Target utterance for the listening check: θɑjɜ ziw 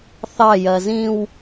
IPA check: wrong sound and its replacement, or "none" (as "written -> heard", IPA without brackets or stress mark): i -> ĩ